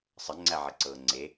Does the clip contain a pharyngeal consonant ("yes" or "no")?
yes